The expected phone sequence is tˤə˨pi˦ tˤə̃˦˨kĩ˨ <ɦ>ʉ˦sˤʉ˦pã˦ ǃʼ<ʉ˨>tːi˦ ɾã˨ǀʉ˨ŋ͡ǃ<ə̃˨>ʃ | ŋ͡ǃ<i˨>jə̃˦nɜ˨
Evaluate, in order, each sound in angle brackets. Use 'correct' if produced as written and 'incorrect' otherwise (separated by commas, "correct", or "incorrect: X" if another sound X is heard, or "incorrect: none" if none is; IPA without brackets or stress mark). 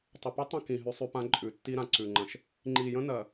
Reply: correct, correct, correct, correct